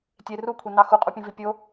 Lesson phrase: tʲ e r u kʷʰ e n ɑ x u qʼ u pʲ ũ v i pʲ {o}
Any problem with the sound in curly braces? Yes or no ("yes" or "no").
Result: no